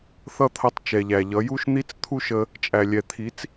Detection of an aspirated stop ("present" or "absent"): present